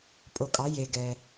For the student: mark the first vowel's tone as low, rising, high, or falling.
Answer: low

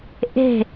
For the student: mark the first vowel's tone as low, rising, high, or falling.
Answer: falling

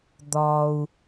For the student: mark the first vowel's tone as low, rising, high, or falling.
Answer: low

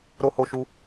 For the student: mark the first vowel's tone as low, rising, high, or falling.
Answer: high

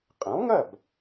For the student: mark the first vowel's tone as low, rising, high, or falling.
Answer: rising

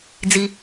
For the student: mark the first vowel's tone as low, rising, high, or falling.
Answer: low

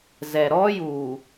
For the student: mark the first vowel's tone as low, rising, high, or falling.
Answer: low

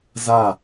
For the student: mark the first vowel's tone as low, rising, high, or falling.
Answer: falling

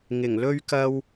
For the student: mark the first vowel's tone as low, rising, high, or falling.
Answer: low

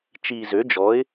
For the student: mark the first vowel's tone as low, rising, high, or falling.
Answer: low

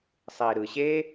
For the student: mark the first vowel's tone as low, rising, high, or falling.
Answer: low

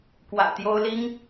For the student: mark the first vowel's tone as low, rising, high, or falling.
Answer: low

